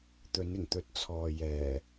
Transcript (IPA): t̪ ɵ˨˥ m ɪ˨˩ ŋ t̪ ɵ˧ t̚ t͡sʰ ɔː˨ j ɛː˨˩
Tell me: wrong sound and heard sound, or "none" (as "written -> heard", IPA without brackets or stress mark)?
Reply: m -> n